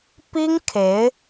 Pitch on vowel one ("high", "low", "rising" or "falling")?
high